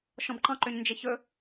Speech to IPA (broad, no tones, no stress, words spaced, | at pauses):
ʃɔ̃bǃɑ̃ǃøɲ nd͡ʒeçɵ